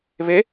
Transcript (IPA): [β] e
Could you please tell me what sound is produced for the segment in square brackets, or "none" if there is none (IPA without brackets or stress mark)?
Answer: β